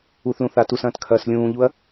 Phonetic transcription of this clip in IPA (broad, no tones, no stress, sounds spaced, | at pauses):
u θ l ũ θ a t u s ɐ̃ː t kʰ ɐː s lʲ ũː ʎ u ɐ̯